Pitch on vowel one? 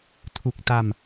low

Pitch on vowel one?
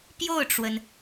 falling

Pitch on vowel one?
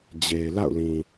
low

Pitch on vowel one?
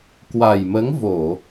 low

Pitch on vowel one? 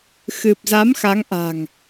low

